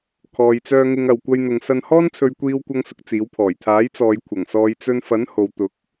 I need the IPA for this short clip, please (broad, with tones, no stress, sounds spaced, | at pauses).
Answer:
kʰ ɔː˨ j t͡s œː˧ ŋ ɪ˧ ŋ ɐ˨ w kʷ ɐ˧ j n̪ ʊ˨˧ ŋ s ɐ˧ n h ɔː˥ n t͡sʰ ɵ˧ ɥ kʷ iː˧ w kʷ ɐ˧ ŋ s ʊ˨ k̚ t͡s iː˨˥ w pʰ ɔː˨˩ j t̪ʰ aː˨˥ j t͡s ɔː˨˧ j kʷʰ ɐ˨˩ ŋ s ɔː˨˧ j t͡s ɵ˧ n f ɐ˨˥ n h o˨ w t̪ ʊ˨˥ k̚